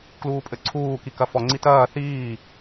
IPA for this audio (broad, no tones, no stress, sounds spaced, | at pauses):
k l uː pʼ ɘ ǀʰ uː k i k ɐ f ɔ ŋ͡ǀ i t ɐː θ iː